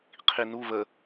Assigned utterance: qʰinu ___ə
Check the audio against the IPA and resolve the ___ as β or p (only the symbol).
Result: β